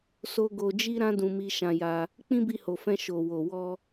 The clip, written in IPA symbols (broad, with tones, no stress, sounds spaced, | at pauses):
s o˦ ɡ o˧ d͡ʒ i˦ ɾ ã˦ d ũ˧ m i˧ ʃ ã˧ j a˧ | k͡p ĩ˦ b i˧ h o˨ f ɛ̃˧ ʃ o˨ w o˨ w ɔ˧